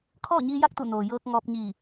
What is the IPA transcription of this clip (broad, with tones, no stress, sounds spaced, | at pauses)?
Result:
kʰ ɔː˥˨ ɲ iː˧ j a˥˨ k̚ t̪ u˧˩ n oː˩ j ɤː˧ k̚ ŋ ɔː˧ p̚ ɲ iː˧˩